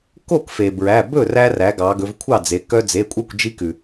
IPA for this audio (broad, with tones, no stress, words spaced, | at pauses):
ko˥˩kfe˩bɹæ˩˧˩ bɵ˥˩ræ˧ræ˩˧ ɡɑ˩˧ɡɵ˩˧vkʷʰɑ˥˩d͡ze˩˧ kœ˧d͡ze˩˧˩kʷʼœ˥˩kʷ d͡ʒi˧kʉ˩